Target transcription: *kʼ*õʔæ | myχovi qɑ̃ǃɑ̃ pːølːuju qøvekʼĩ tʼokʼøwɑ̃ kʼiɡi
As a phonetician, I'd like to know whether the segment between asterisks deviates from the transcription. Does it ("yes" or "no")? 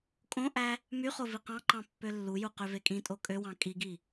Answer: no